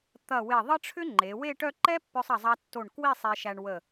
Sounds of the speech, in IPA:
t̪ ɐ˧˩ w e˧˩ ðˤ ə˥ ʈ͡ʂʰ ʏ˥ ŋ͡ǃ e˩˧ w e˥˧ ʈ œ˥˧ ǃ ɛ˥ pː œ˥ sˤ ɐ˥˧ zˤ ɐ˥ tː o˧˩ ɳ k w i˥˧ sˤ e˧ ʃ æ˧ ɳ w ə˧˩

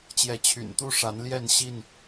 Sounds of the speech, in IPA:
t͡ɕ j ɛ˨˦ t͡ɕʰ y̰˨˩ n t̪ u˥˨ ʂ a˨˦ n l j ɛ˥˨ n ɕ i˥˨ n

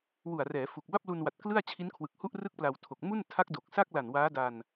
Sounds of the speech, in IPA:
w u˨˩ a̯ r ɛː˩˦ f u˨˩ k̚ b a˥˩ p̚ l u˧ n w a˨˩ t̚ k l ɯ˥˩ a̯ t͡ɕʰ i˦˥ n kʰ w ɯ˨˩ k̚ h u˥˩ ʔ r ɯ˥˩ k̚ p l a˧ w tʰ o˨˩ k̚ m u˥˩ n tʰ a˦˥ k̚ d o˨˩ k̚ s a˥˩ k̚ l a˨˩ n w aː˦˥ d a˧ n

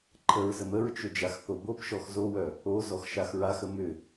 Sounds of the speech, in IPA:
ǃʰ ə ɹ z ə m ə ɹ t͡ʃ ʏ d͡ʒ a x θ o b o p ʃ ɔ x z o w œ | o z ɔ x ʃ a x ɹ a x ə m ʏ

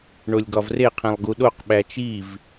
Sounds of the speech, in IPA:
ɳ o lʲ ɡ ɒ v r e qʰ ẽ lˠ ɡ u ɗ o q ɓ æ t͡ʃ i v

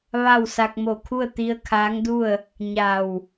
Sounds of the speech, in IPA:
ʋ a˥˨ w s a˧ k̚ m o˧˩ kʰ u˥˨ ə̯ t̪ i˧ ə̯ kʰ aː˧˥ ŋ d u˥˨ ə̯ | ɲ a˧˩ w

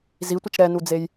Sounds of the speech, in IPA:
z i tʷ ɪ t͡ʃ ɾ ɛ n u d͡z e j

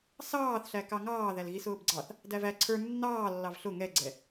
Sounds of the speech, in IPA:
s ɑː θ ɬ æ k ɑ ŋ ɑː ð æ l ɣ i s ʊː b ɡ͡ǀ ɑ θ | d æ v æ ǀʰ ə˞ nː ɑː lː ɑ v ɬ ʊ ŋ ɛ ɡ͡ǀ ɛ

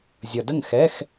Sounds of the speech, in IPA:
zʲ ʌ˨ d ə˥˨ ŋ x ɛ˧˥˧ x

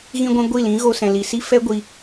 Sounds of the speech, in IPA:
ɣ ĩ˧ ɡʷ ɛ̃˧ ɡʷ i˦˨ l ĩ˨˦ ɣ o˧ s ɛ̃˨ l i˨ s i˦ f ɛ˦ ɡʷ i˧

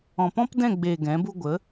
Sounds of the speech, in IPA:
ɔ̃˨ p ɔ̃˦ p d ɛ̃˦˨ ɡ͡b eː˨ ɡ ɛ̃˨˦ b u˦ ɡʷ ə˨˦

